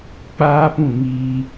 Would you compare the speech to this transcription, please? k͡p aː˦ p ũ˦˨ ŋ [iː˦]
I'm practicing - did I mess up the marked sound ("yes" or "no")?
no